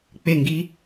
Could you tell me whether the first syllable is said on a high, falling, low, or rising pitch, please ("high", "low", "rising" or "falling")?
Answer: falling